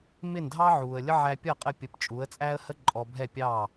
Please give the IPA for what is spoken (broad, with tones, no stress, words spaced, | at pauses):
mɪː˥˩ndʱɑ˥ ʕuː˩ə̯lʲə˥ ʕæ˧pʲʌ˥˩qʼə˧pʲə˩˥p t͡ʃʼu˩˥ə̯t͡sʼæ˥ə̯hə˥ ǃʼɔ˧ bʱɛ˥˩ pʲɑ˥˩